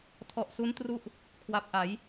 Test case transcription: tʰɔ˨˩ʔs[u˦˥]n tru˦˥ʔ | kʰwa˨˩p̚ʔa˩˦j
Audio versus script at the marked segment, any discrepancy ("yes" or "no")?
no